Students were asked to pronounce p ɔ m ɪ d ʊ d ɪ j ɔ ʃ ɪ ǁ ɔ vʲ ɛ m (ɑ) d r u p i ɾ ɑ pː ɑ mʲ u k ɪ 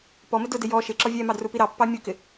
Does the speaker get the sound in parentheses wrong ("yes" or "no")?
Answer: no